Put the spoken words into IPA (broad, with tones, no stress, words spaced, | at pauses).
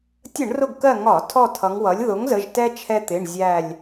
tʲə˧˩˧ɳ rʊ˦˨ɡkɜ˦˨ ŋɒ˧˩˧ tʰɔ˦˨tʰʌ˩˧ŋwʌ˩˥lʲ ðʊ˩˥ŋzə˩˧˩ʒtɛ˦ t͡ʃʰɛ˦t̪ɪ˩˧˩ɳ zʲæ˦˨lʲ